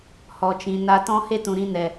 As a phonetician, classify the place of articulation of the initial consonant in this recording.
glottal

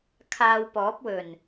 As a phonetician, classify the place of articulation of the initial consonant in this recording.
velar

